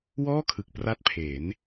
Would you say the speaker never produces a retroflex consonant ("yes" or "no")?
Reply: yes